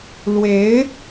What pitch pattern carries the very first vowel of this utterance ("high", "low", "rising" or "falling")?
rising